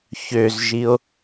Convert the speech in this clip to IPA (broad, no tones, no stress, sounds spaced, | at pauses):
ç ø z ʒ i o̯